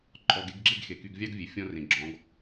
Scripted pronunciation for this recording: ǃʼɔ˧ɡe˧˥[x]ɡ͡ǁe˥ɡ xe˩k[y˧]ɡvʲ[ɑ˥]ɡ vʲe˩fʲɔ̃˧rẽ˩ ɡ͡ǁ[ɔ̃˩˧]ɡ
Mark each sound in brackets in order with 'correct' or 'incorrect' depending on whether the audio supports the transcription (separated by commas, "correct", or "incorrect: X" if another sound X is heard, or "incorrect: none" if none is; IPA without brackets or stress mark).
incorrect: ɡ, correct, correct, correct